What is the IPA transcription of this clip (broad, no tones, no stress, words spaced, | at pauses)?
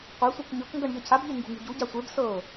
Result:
qʷesʷɤk ɲɤkŋɡʌɳ ʎʌcʰabʎe ŋɡṳŋṳɟuɟa sʷeb sɤ